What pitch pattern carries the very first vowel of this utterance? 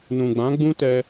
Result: low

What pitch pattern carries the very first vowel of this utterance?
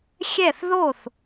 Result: falling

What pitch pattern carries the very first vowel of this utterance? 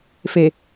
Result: low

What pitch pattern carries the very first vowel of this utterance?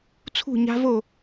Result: falling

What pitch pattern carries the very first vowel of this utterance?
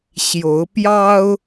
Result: rising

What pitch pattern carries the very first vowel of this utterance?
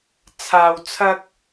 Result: low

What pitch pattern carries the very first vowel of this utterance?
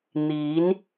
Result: rising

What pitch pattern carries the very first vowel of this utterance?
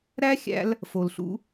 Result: high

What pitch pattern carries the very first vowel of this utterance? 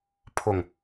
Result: low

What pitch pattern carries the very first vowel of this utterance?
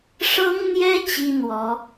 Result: high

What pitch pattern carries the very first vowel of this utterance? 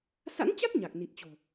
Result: rising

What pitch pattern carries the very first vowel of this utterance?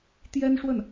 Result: high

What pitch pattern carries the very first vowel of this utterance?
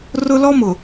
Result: high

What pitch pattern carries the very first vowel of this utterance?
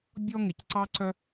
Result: high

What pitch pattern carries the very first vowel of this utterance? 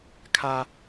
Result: high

